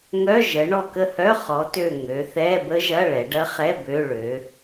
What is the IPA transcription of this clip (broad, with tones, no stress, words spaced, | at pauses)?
ŋœ˧˥˧ ʒə˨˥ ɳɔ˦˨kə˦˨hœ˧˥˧ χɔ˨˥tø˦˨ ŋø˩˧θɛ˧˥˧bə˦˥ʒɐ˧˥˧ ɭɛ˩˧ɖɐ˦˥χɛ˧˥˧ bø˧˥˧ɭø˨˥